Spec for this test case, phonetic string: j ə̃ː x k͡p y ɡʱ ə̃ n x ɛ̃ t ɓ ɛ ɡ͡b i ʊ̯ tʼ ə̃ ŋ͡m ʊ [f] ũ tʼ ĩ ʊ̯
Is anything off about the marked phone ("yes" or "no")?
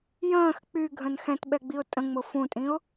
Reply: no